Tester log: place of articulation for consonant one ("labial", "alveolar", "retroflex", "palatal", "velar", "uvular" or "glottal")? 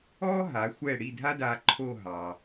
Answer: glottal